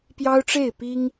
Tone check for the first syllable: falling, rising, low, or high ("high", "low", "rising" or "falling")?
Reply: high